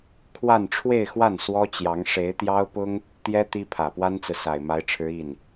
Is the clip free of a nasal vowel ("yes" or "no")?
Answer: yes